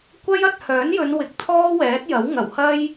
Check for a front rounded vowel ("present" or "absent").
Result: present